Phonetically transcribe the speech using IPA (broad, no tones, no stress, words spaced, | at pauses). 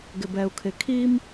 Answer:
ɡɪbɛu̯kʰɪkʰim